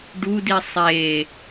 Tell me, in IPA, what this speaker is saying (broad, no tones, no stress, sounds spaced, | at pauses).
ɖ u d i sˤ e